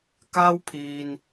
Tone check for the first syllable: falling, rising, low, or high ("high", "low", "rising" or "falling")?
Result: high